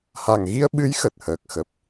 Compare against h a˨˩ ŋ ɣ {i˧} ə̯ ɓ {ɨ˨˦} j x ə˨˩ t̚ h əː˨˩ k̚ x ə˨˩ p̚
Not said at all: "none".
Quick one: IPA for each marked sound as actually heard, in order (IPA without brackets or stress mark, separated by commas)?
i˧, ɨ˨˦